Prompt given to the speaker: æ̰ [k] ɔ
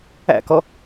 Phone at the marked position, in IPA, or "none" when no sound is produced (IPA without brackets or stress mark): k